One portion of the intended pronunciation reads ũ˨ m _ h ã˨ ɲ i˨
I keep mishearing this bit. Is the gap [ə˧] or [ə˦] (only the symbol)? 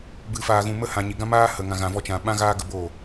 ə˦